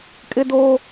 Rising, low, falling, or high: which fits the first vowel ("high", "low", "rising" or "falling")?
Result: high